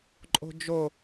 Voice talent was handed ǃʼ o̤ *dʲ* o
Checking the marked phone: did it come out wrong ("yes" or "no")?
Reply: yes